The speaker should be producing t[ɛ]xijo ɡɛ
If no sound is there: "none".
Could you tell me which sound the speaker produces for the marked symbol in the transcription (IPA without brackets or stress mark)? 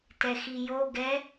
ɛ